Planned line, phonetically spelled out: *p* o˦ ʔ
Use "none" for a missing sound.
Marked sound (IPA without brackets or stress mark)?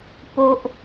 p